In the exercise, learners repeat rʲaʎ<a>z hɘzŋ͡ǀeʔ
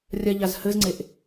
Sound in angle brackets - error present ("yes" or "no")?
no